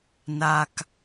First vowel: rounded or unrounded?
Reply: unrounded